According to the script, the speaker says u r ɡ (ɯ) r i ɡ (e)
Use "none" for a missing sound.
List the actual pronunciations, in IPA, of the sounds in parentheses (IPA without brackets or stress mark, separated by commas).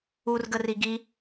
ə, i